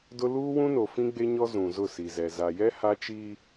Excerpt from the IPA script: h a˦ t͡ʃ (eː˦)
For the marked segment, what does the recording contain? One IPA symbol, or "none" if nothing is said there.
iː˦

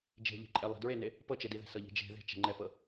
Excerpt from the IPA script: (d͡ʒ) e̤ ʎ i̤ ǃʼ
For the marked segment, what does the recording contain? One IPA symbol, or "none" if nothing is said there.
d͡ʒ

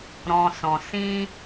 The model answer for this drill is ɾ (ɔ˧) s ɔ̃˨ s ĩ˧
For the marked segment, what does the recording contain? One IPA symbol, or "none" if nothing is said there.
ɔ̃˧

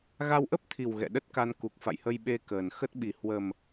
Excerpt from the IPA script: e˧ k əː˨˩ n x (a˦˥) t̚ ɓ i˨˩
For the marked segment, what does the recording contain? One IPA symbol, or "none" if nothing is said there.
ə˦˥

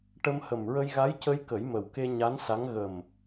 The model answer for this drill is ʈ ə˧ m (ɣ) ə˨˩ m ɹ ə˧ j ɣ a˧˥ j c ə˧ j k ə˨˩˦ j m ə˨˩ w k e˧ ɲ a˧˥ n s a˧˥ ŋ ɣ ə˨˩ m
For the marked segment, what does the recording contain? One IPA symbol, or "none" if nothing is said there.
h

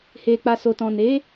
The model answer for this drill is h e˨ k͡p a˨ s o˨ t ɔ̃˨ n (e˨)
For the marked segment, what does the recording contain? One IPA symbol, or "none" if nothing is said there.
e˨˦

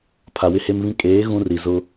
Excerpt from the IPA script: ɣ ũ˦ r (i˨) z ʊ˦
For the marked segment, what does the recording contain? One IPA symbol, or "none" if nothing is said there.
i˨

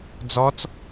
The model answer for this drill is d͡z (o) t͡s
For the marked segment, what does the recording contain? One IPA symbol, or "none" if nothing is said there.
ɔ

